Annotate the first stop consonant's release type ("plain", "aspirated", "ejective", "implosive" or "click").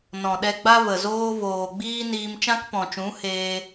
implosive